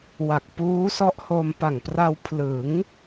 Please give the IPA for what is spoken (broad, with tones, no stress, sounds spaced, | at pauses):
w a˨˩ k̚ p uː˦˥ s ɔ˦˥ ʔ h o˧ m p a˨˩ ŋ p r a˧ w pʰ l ɯ˩˦ ŋ